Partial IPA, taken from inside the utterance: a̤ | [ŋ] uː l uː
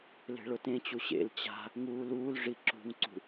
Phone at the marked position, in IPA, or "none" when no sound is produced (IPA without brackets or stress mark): ŋ